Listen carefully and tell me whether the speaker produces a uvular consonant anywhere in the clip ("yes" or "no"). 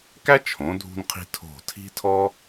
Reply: yes